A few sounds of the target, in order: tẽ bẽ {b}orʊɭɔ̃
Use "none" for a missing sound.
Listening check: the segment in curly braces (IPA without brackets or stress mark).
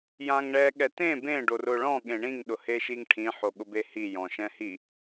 ɖ